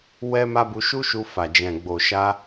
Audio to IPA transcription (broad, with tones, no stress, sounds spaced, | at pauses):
w ɛ˦ m a˦ b u˧ ʃ u˦ ʃ u˧ f a˨ d͡ʒ ɛ̃˨ ɡ͡b o˨ ʃ a˧